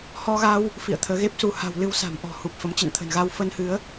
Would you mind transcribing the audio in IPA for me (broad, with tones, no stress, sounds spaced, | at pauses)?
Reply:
h ɔ˧ ɣ a˧ w | f ḭ˧˨ ə̯ t̪ʰ əː˨˦ ɣ e˦˥ p̚ s u˨˦ h a̤˨˩ w l ɨ˧ w s a̤˨˩ m ʔ ɔ̤˨˩ h u˨˩ p̚ f ə˨˦ m t͡ɕ ə̰˧˨ n t̪ʰ ə̤˨˩ n ɣ a˧ w f ə˧ n h ɨ˨˦ ə̯